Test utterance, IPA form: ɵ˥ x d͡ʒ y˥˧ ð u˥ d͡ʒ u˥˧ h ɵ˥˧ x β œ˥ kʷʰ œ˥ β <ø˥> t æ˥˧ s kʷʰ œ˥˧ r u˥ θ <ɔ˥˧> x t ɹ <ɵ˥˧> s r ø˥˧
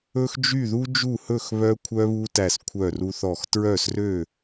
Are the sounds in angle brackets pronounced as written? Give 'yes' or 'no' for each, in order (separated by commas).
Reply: no, yes, no